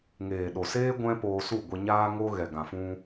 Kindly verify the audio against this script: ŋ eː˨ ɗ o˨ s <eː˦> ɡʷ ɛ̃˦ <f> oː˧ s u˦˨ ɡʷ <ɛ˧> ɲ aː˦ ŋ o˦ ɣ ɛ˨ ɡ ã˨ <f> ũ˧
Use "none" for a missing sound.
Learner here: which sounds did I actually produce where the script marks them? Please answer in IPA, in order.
eː˦, p, ɛ˧, f

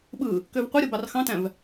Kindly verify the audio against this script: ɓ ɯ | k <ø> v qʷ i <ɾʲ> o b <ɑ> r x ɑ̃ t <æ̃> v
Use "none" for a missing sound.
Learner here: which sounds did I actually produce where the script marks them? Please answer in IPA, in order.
ø, ɾʲ, ɑ, æ̃

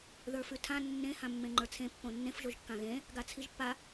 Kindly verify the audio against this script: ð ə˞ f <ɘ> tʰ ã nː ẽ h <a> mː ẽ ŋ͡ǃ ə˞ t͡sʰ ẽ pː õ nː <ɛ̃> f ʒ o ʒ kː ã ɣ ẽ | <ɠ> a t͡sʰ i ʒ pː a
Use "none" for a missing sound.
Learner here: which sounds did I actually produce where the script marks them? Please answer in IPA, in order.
ʉ, ã, ẽ, ɡ

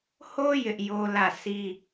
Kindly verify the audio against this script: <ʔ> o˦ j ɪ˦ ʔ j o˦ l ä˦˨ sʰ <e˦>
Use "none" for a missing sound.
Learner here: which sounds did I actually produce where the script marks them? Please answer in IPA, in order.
h, i˦

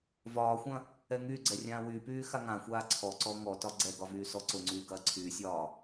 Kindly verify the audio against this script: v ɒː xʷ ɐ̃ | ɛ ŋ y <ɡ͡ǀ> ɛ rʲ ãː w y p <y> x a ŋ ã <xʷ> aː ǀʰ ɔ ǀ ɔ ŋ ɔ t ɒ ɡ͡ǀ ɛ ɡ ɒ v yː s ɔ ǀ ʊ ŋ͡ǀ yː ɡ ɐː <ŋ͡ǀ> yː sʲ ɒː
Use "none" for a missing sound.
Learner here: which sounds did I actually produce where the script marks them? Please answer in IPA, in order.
ɡ͡ǀ, yː, xʷ, ǀʰ

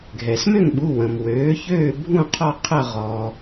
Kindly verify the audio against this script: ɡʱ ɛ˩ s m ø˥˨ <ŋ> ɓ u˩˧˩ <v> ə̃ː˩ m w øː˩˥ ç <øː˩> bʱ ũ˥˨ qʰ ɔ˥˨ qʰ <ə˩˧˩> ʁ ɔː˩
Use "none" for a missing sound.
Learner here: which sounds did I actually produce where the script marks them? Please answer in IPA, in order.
ŋ, w, øː˥˨, ə˥˨

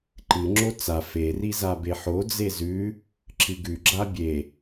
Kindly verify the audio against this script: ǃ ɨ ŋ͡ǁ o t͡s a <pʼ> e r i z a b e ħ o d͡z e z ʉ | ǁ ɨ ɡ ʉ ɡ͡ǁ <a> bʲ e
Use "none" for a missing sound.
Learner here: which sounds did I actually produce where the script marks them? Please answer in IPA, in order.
f, a

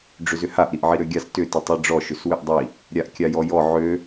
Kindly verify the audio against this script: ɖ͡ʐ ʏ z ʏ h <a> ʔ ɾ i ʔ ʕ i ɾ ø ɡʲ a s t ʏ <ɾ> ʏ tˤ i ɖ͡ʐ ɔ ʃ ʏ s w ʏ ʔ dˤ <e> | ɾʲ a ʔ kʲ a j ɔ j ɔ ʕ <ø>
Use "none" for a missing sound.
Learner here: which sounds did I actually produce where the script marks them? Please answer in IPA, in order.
a, t, i, ø

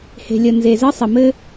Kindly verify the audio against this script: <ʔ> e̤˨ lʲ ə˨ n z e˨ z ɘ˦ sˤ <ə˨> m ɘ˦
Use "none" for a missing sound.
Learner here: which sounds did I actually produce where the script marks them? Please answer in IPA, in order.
h, ə˨

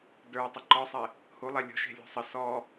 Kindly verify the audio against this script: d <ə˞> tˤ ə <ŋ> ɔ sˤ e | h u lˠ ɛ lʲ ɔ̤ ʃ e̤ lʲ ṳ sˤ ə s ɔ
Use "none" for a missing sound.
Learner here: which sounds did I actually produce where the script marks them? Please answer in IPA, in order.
ə˞, ǃ

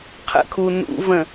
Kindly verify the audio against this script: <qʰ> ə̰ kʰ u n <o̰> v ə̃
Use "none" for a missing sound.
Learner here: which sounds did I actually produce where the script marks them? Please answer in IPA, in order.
qʰ, ṵ

